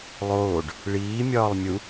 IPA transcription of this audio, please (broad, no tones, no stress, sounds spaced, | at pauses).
lˠ oː ɖ | ɭ iː mʲ ɒː lˠ mʲ u